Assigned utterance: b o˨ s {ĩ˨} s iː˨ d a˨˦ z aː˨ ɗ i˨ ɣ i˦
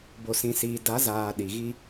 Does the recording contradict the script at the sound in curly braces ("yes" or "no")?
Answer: no